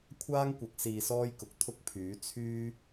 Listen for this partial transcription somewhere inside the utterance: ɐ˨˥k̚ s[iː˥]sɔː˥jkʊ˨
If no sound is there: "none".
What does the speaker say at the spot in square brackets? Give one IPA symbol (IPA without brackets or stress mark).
iː˧